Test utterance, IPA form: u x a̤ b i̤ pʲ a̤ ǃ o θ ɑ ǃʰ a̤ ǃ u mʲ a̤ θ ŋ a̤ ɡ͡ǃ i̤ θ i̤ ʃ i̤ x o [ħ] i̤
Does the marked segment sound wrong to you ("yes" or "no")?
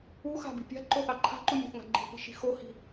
yes